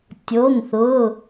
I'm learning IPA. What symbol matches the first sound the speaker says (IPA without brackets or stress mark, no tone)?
tʲ